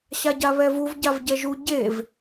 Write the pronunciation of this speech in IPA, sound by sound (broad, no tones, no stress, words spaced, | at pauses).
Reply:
ɕaɟaβɛvuv ɟavɟɛʒu ɟev